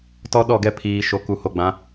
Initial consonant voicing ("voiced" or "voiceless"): voiceless